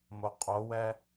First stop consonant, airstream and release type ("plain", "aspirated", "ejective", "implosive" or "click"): ejective